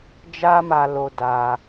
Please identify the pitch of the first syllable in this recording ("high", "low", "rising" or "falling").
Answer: high